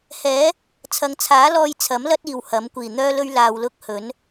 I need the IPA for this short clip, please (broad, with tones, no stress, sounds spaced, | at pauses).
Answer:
h ɛː˨˥ | t͡sʰ ɐ˨ ŋ t͡sʰ aː˨˥ l ɔː˧ j t͡sʰ ɐ˨˥ m l ɐ˥ t̚ iː˨ w h ɐ˨˥ m kʷ iː˨˩ n̪ œː˥ l ɵ˥ ɥ l aː˧ w l ʊ˥ k̚ h ɵ˨˥ n